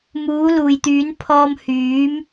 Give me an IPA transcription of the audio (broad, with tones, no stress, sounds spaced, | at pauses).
m uː˨˥ l uː˨ j t̪ yː˨˥ n pʰ ɔː˧ m h yː˨˥ m